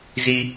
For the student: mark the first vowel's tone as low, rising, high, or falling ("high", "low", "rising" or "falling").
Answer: high